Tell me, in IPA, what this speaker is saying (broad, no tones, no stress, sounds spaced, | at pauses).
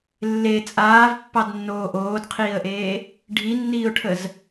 lː e t͡sʼ aː v pː ɑ d nː oː ʔ oː d qʰ iː ə̯ ʔ eː | ɖʱ i nː iː ʊ̯ ʈʰ ə z